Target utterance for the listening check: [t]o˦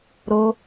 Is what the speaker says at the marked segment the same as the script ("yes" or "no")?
no